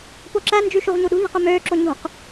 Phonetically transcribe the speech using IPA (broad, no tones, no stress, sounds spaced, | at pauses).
p o ǁ æ n d͡ʒ y ʃ u ʁ ɲ u ɗ ṳ ʎ e̤ q ø m øː ǁ o ɲ ṳ q